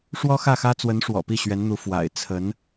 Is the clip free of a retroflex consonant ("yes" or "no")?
no